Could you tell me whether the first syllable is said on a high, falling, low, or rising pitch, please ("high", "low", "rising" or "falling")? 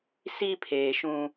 high